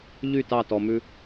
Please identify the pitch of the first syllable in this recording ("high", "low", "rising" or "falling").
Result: falling